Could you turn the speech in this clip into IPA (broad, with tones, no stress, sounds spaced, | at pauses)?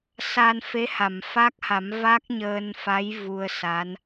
s a˧ n f e˧˥ h a˨˩˨ m f a˦˥ k̚ h a˨˩˦ m v a˦˥ k̚ ɲ əː˧ n f a˧˥ j v u˧ ə̯ s a˧˥ n